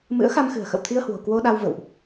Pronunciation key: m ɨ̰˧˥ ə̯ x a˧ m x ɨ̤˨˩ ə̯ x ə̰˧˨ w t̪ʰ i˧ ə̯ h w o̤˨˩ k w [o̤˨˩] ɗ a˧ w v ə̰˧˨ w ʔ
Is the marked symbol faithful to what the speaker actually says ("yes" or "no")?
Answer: no